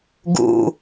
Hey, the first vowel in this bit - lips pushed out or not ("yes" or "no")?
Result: yes